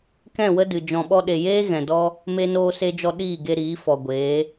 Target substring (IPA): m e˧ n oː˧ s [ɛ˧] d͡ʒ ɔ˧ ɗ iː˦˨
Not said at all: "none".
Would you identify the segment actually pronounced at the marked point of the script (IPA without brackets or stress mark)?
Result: e˧